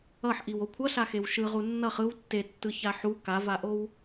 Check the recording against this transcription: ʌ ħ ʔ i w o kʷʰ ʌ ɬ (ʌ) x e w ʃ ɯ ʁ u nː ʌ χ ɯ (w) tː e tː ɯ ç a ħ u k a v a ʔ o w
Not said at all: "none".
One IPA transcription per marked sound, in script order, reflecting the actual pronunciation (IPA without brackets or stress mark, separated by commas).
a, w